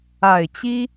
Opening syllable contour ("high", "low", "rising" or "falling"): low